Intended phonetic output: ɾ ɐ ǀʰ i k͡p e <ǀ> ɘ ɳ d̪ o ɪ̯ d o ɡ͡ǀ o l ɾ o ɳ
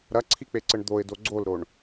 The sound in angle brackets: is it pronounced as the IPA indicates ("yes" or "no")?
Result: yes